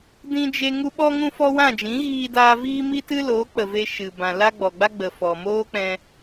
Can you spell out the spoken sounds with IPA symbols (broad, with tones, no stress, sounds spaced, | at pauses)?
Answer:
d ĩ˦ d͡ʒ e˦ ŋ u˦ ɓ ɔ˦ ŋ ũ˦ f ɔ˦ w ã˦˨ d͡ʒ ĩ˨˦ ɣ iː˧ d aː˧ v iː˦ m i˦ t ɨ˦ l oː˨˦ k͡p ə˨ v e˧ ʃ ɨ˨ b ã˨ l a˦ ɡ͡b ɔ˨ ɡ͡b a˦ ɡ͡b ə˨ f ɔ˨ m oː˦ k͡p ɛ̃˧